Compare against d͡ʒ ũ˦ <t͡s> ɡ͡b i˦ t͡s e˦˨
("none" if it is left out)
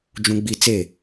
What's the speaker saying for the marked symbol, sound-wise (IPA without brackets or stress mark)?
none